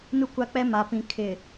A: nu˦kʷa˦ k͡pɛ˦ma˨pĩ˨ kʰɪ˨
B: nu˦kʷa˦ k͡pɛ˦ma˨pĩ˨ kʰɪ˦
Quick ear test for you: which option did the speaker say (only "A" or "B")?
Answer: A